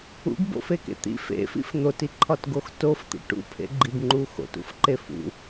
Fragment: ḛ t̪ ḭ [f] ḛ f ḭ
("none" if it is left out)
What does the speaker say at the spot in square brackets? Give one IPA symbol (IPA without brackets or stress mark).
f